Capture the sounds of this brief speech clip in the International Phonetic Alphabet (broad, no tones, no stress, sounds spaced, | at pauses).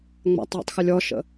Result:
ŋ͡m a̰ tˤ w ə̰ tˤ x ɪ lʲ ɔ ʃ ə̰